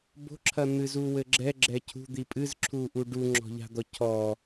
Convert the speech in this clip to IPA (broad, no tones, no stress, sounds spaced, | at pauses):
b o̤ ǁʰ ɐ n̪ ɨ z u w ɘ ɡ͡ǁ ɛ ɡ͡ǁ ɛ cʰ ṳ d̪ i pʼ ɨ z ǁʰ u ʔ u ɖ u ŋ͡ǁ ɔ̤ ʎ a̤ d̪ ɔ cʰ ɔ